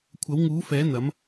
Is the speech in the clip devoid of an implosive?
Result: yes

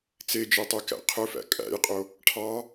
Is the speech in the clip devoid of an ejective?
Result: no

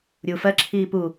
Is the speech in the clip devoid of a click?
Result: no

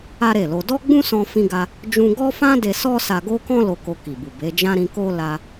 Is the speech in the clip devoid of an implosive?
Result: yes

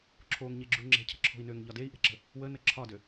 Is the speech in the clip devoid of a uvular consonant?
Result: yes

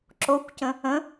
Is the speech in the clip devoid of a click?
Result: no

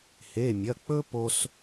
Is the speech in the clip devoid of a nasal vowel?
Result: yes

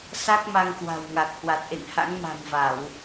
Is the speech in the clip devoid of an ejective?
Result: yes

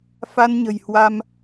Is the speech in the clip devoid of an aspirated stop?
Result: yes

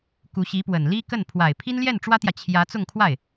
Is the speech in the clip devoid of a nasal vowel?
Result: yes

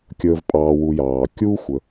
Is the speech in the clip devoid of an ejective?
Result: no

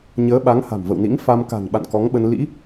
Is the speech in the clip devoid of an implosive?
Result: no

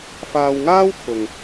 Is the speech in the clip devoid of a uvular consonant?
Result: yes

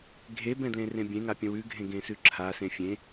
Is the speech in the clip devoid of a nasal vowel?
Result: no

